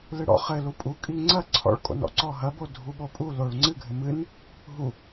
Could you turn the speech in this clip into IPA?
l ɨ ɽ ɔ̰ χ ɘ l u pʼ u kʼ i ŋ͡ǀ ɐ ǀʰ ɔ̰ ɭ kʼ o̰ n ɔ̰ ǀ ɔ ɦ ɐ b o dʱ u ɓ o pʼ u l o ɭ ŋ͡ǀ ɨ ɡʱ ɘ m ɨ n | ɦ u

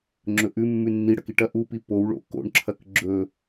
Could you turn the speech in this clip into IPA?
ŋ͡ǁ ɵ ʔ ʉ mː ʉ nː i ɽ ɐ k i ʈ ɐ ʔ u p i p o w ɭ o̰ k o̰ ɳ ǁʰ ɐ k ɡ͡ǁ ɵ

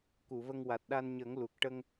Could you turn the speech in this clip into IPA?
k u˨˩˨ v ə˧ ŋ w a˨˩ t̚ ɗ a˧ n ɲ ə˨˩˦ ŋ l u˨˩ k̚ ʈ ə˧ ŋ

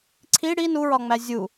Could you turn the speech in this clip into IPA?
ǀʰ i ɽ i n u ɹ ɒ ŋ͡m æ zʲ u

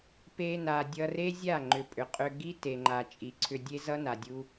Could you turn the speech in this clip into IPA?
p e˧ n a˨ dʲ ʌ˧ r e˦ zʲ a˦˨ ŋ͡ǃ ʏ˨ pʼ ʏ˨ qʼ ʏ˧ ɡ i˦ t e˨ ŋ͡ǃ a˨ t͡ʃʼ i˨ ǀʰ ʏ˧ dʲ e˦ z ʌ˦ n a˨ dʲ u˧

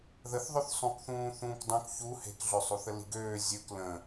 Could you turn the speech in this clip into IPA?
ð ə θ ðˤ ɵ θ sˤ ũ k θ ũː θ ũː k dˤ ũ k ç u h e̤ k ɮ ø sˤ u θ ə l i̤ ɡ øː zʲ ɵ k l ə̃

